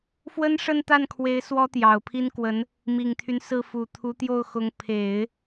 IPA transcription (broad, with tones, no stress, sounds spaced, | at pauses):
f w ə˥ n ʂ ə˥˧ n t̪ a˥˩ n kʰ w e˧˥ ɪ̯ s w ɔ˥ t̪ j ɑ˨˩ ʊ̯ pʰ i˥ n k w ə˧˥ n | m i˨˩ ŋ t̪ʰ y˦ n s ɹ̩˥˩ f u˨˩ t̪ʰ u˧˥ t̪ j o˥˩ ʊ̯ x ʊ˧˥ ŋ pʰ e˨˩˦ ɪ̯